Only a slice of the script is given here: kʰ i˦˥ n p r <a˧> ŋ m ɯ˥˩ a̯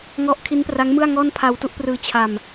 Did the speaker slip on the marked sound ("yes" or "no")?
yes